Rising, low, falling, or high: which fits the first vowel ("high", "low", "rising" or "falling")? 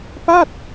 falling